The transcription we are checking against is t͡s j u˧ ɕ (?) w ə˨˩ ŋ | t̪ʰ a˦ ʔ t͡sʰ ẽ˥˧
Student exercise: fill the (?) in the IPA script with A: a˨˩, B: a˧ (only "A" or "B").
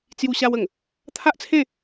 B